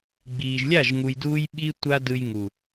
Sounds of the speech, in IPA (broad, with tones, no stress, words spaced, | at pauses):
ɡ͡biː˨ʒlʲa˦˨ʒ ŋu˧jduː˦j ɓi˦ tʷa˦dɯ˧j ŋu˨